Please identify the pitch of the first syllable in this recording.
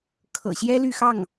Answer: low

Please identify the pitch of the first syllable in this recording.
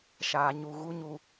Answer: low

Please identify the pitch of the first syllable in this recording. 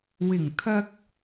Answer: low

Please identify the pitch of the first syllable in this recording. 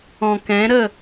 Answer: low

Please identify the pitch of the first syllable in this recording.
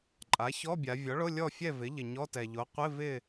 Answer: rising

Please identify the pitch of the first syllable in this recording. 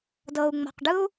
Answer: low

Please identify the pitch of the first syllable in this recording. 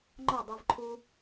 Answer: falling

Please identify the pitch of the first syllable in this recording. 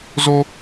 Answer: high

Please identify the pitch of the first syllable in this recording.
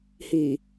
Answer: low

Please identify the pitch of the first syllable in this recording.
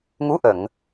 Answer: rising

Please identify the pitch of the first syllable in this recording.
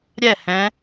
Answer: falling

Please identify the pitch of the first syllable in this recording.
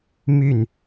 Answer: falling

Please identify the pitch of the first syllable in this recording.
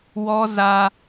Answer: high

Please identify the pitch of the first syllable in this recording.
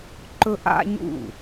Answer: high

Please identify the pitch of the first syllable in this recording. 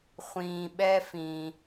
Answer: low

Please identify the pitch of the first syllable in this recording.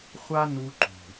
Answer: high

